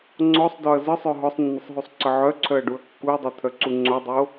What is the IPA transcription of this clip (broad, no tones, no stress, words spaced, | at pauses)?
ŋ͡ǀɔsˤdɔɐ̯ zəsˤœ ɦɔsˤnːəsˤɦusˤǀə ʕœǀʰœɐ̯ɖuɐ̯ kːuɐ̯dˤot̪ʰœǀu ŋ͡ǀodˤo